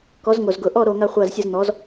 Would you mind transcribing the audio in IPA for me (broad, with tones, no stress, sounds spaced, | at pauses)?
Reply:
k ɔ˩˥ z ŋ o˨˩ z ɡ ʊ˨˩ ʔ ɔ˥˨ ɾ o˥˨ ŋ a˥˨ χʷ a˥˨ z sʲ ə˥˨ z n̪ ɔ˩˥ z